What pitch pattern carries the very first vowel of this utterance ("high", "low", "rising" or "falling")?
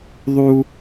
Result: high